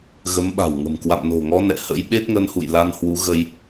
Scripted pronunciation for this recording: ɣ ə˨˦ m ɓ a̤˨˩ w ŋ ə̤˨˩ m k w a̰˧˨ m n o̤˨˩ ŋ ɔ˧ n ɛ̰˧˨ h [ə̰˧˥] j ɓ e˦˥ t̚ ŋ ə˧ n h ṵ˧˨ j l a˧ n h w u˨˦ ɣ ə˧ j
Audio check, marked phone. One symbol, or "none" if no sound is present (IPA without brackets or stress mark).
ə̰˧˥